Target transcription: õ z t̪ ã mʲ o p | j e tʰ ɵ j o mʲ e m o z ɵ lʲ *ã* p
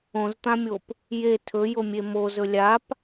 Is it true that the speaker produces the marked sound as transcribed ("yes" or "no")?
no